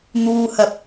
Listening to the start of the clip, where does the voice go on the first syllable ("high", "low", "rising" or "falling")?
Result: low